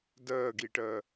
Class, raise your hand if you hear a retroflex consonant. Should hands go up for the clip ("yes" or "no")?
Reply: yes